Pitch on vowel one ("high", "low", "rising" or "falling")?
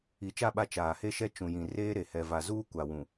rising